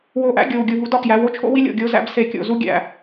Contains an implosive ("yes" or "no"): no